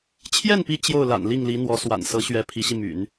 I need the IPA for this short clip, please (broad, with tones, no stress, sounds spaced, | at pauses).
t͡ɕʰ j ɛ˥˩ n p i˧˥ t͡ɕ j o˥˩ ʊ̯ l a̰˨˩ n l i˥˩ ŋ l i˧˥ n̪ w ɔ˧˥ s w a̰˨˩ n s ɤ˧˥ ɕ ɥ ɛ˧˥ pʰ i˧˥ ɕ i˧ m y̰˨˩˦ n